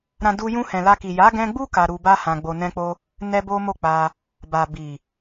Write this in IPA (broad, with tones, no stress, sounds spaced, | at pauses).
ɾ ã˧ d u˧ j ũ˧ h ɛ̃˨ l a˧ k i˨ j a˨˦ ɡ ɛ̃˧ ɡ͡b u˦ k a˧ ɾ u˧ b a˦ h ã˧ ɡ͡b o˧ n ɛ̃˦ k͡p o˦ | n ɛ˦ b o˦ m o˦˨ k͡p a˧ | b a˨ b i˨